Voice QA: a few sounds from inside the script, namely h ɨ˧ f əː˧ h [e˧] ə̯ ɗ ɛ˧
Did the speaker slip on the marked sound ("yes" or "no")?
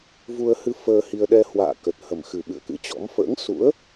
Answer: yes